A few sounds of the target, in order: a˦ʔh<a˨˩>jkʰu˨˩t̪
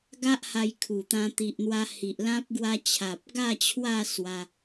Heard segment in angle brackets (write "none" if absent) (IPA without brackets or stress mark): a˧